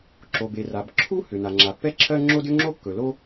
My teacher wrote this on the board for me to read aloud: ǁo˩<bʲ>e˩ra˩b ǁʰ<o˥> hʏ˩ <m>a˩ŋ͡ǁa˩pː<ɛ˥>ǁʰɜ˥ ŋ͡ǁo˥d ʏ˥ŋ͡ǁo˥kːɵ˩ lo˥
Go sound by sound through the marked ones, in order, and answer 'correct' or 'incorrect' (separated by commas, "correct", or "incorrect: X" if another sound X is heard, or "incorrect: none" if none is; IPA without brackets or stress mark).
incorrect: b, incorrect: u˥, incorrect: n, correct